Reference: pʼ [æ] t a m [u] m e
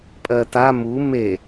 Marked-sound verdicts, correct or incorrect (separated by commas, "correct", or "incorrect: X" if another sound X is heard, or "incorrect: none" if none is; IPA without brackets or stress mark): incorrect: ɜ, correct